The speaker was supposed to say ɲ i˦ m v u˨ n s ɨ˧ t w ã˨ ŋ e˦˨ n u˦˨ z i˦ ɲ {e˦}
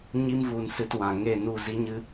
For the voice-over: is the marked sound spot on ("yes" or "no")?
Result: no